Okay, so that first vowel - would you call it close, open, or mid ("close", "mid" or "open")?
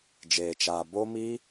mid